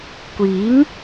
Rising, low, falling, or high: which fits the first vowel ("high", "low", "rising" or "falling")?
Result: rising